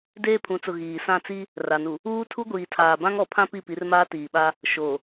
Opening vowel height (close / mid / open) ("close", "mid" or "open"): mid